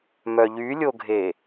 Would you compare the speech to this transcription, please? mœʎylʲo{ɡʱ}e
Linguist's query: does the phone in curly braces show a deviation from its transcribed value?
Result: no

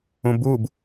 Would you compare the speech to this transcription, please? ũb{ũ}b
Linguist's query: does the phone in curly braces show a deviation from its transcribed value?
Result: yes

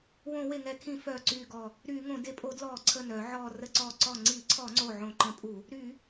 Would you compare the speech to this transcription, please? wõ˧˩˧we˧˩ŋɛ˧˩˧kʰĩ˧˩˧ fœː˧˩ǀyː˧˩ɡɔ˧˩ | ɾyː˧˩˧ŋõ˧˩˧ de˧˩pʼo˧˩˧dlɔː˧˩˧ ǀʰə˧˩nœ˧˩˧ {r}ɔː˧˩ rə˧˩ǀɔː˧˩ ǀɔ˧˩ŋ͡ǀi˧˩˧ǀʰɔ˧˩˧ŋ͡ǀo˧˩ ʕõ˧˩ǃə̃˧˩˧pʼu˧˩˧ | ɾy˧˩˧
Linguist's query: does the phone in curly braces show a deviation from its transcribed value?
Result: yes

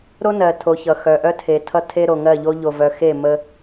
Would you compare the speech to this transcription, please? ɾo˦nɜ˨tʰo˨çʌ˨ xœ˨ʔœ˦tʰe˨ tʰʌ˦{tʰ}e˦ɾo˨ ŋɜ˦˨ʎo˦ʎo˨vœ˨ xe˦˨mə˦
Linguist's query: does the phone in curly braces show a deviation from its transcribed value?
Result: no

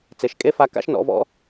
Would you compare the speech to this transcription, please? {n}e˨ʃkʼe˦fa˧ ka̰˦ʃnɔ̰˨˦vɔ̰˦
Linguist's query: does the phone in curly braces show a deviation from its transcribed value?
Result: yes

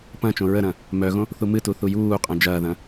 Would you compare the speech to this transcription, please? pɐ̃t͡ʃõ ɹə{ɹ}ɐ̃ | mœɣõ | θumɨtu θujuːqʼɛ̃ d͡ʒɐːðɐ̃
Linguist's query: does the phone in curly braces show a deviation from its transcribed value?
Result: yes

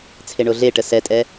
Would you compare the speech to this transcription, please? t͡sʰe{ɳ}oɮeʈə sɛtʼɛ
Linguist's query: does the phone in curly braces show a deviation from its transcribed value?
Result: no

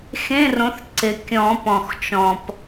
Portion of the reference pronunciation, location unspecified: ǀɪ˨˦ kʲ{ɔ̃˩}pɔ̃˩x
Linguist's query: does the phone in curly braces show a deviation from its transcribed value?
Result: yes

